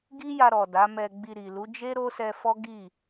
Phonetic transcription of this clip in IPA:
ɡ i˦ j a˧ ɾ ɔ˨ d a˨˦ m ɛ˧ ɡ͡b i˧ ɾ i˨ l u˨˦ d͡ʒ e˦ ɾ o˦ s ɛ˧ f ɔ˦ ɡ i˦˨

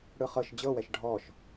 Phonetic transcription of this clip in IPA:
ɽ ɯ χ ɤ ʃ d͡ʑ ɤ w ɛ ʃ ɖʱ ɔ ʃ

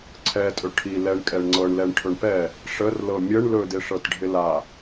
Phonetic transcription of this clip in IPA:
ǀʰ ɛ tʼ ɵ ʈʰ i l ɛ ɳ kʼ ɛ ɳ ŋ͡ǀ ɤ ɳ l ɛ ɳ ʈʰ ɵ ɳ p ɛ | ʂ ə r l ɤ mʲ ə ɳ l ɵ d ɪ ʂ ɤ t ɖʱ ɪ l a

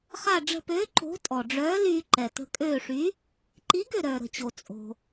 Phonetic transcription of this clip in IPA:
χ a˧˩ ɖ͡ʐ ə̤˧˩ p øː˨˥ ǃ o̤˨˥ tʼ ɔ˩ ɖ͡ʐ œː˨˥ l yː˧ ǃ ɛ˩ t ə̤˧ kʼ øː˧˩ ʂ y˨˥ | ǃ i˨˥ ɡ ø˧˩ ɾ œː˩ ɾ ə̤˩ t͡ɕ o˩ t͡sʼ o̤˩

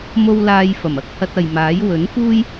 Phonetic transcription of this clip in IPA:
m o˧ w l aː˧ j f ɐ˨˩ m ɐ˧ k̚ h ɐ˧ t̚ ɐ˨ j m aː˨˥ j w ɵ˨˥ n f uː˥ j

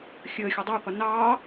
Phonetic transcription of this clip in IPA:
xʲ əː xʲ ə dˤ əː qʷ ɪ n ɑː

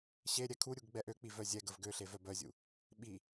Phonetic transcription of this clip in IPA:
ɕ e ɾʲ ɛ kʰ u ɾʲ u ɡ ɡ͡b ɛ ʔ ø k͡p i v œ zʲ ɛ ɡ ə v ɡ ø ɬ e v œ b œ zʲ ṵ | ɓ i

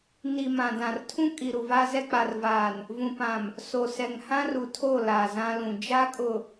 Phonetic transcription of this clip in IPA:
n i˨ m ã˨ d ã˨ r tʰ ũ˦ kʼ i˨ ɾ u˨ v aː˦ z ɛ˦ k͡p a˨ r v aː˨ n | v ũ˨ p ã˨ m | s o˨ s ɛ˨ ŋ h ã˦ r u˨ tʰ o˦˨ l aː˨ z ã˦ l ũ˨ d͡ʒ a˦ kʼ ʊ˨

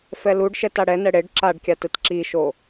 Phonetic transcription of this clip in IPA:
f ɛ l u ɖ ʃ ɛ t a ɽ ɛ n ɛ ɽ e ɖ ǁ a ɖ kʲ a t ɯ t ǁ i ʃ o

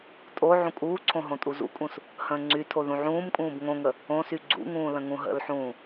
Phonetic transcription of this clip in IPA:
tʼ o ʕ ũ kʼ uː ǀʰ õ ɦ õ tʼ u z ṵ kʼ ũ s | h ə̃ː ŋ͡ǀ y tʰ o ð ũ ʕ ũː m kʼ ũː b ŋ õ ŋ ə | õ s y ɡ͡ǀ ṵ ŋ ũː l ə̃ ŋ ũ ɦ ə̰ l ħ ũː

